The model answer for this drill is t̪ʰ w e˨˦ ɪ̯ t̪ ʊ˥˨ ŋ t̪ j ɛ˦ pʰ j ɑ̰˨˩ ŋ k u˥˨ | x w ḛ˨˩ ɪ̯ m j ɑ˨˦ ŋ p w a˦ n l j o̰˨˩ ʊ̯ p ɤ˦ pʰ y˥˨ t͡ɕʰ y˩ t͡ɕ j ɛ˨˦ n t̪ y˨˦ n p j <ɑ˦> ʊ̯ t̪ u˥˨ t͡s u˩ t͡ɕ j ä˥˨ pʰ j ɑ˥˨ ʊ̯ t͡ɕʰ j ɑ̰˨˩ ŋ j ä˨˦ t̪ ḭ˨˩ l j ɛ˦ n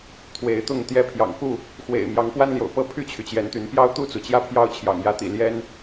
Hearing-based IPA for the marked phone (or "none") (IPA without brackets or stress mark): ɑ˦